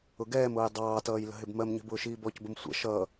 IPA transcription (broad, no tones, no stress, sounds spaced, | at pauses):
ʊ ɡ ɛː m ʊː j dˤ ɑː t ʌː j l ə̤ ɦ ɪ b m ɜ m ɲ ə̤ b ʊː ʃ iː b ɔ c b ə m sʷ ə̰ ʃ ʌ